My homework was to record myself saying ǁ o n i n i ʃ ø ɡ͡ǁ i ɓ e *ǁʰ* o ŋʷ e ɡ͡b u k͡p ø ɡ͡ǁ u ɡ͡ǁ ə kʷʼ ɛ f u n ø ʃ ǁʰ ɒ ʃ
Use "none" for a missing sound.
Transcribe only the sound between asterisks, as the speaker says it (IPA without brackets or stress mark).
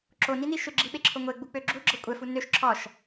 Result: ǁʰ